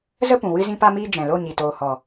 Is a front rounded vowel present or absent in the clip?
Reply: absent